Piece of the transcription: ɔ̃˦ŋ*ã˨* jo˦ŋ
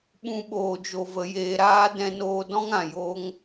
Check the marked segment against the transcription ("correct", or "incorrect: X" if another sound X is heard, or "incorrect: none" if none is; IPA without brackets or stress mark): correct